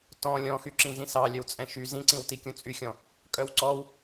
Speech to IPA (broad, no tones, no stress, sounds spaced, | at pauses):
t ɔ̃ lʲ ɔ̃ x y ǁ ĩ z ĩ s ɑ lʲ œ w t͡sʼ ɛ̃ ʃ y z ĩ ǀ ĩ w t i kʲ ũ t͡sʼ y xʲ ɔ̃ | kʼ œ w ǀ ɔ w